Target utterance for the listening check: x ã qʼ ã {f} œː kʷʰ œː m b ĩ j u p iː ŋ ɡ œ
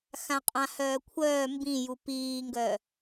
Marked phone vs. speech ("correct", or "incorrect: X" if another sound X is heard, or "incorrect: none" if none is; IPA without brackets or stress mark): incorrect: h